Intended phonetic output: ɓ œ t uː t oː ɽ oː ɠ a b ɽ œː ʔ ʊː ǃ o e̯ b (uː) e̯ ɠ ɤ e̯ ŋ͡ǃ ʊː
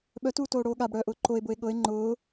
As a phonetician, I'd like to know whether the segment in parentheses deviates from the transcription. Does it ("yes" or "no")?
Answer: yes